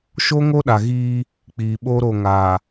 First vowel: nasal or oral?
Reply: oral